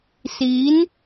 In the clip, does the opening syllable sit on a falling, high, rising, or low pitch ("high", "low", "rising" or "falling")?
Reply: rising